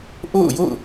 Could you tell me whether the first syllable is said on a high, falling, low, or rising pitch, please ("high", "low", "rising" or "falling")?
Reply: falling